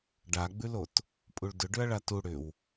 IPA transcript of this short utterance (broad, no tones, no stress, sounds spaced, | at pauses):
ɖ a ɡ͡b ʉ l o t | pʼ u ɭ d ʏ ɖ ʏ ɐ̯ ɭ a t u ɽ ʏ w